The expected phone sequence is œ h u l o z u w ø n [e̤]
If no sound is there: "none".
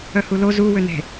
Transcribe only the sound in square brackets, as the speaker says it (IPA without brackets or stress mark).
e̤